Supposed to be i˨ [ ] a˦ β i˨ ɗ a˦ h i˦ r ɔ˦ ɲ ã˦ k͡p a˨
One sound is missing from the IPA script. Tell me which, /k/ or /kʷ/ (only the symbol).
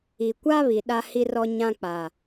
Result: kʷ